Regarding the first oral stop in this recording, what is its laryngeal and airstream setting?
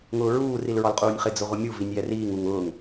ejective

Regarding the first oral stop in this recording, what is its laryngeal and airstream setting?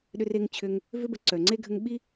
implosive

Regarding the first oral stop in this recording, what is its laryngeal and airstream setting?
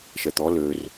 plain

